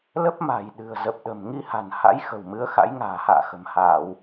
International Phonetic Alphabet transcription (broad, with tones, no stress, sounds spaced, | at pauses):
l ə˦˥ p̚ m a̤˨˩ j ɗ ɨ̤˨˩ ə̯ z ə˨˩ p̚ ɗ ə̤˨˩ m ŋ i˧ h a̤˨˩ n h a̰˧˥ j x ə̤˨˩ w m ɨ˨˦ ə̯ x a̰˧˥ j ŋ a̤ː˨˩ h a̰ː˧˨ x ə̤˨˩ m h aː˧˩˨ w